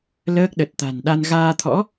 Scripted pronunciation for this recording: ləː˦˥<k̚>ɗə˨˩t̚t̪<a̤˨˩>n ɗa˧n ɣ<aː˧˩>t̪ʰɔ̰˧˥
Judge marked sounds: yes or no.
yes, yes, no

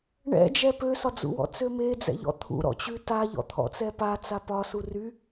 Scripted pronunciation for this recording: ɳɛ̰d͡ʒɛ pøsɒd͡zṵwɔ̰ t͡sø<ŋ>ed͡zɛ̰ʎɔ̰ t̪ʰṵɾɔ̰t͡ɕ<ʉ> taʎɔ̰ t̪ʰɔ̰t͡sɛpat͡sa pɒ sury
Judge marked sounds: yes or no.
no, yes

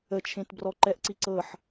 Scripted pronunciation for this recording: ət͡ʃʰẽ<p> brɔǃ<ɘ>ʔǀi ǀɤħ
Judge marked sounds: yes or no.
no, no

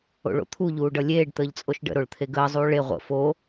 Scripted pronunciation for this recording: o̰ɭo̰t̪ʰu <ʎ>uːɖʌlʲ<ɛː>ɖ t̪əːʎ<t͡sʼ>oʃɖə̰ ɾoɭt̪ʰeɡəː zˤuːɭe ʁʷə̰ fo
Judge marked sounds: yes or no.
yes, no, yes

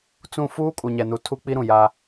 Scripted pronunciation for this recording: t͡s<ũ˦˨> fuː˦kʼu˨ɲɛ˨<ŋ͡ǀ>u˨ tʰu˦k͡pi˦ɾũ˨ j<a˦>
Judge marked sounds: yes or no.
yes, no, yes

